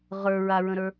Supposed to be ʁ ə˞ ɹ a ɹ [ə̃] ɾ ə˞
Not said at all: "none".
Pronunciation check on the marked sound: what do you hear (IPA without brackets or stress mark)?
ə̃